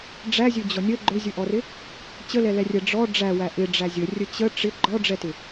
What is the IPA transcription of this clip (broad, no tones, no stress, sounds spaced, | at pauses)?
ɖ͡ʐ æ zʲ ɵ d͡ʑ ɔ nʲ ə ɡ͡ǃ ɵ zʲ ɵ ʔ ɔ r ɪ | t͡ɕ ə l ɛ l ɛ rʲ ɛ ɖ͡ʐ ɔ ɖ͡ʐ æ w æ ʔ ɪ ɖ͡ʐ æ zʲ ə rʲ ə t͡ɕ ə ʈ͡ʂ ɪ ɡ͡ǃ ɔ ɖ͡ʐ ɛ t ɪ